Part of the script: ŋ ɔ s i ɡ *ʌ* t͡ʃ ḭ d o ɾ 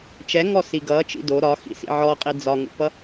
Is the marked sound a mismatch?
no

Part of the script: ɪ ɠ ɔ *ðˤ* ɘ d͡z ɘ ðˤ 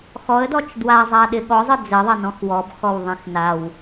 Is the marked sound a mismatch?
yes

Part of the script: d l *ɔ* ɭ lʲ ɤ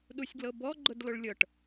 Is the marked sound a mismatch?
yes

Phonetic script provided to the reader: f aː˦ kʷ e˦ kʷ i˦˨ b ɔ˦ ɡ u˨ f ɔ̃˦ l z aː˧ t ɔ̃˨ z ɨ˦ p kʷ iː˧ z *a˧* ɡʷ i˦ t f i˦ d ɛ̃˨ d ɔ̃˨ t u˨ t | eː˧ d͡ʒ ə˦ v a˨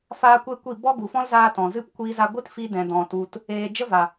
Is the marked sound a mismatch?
no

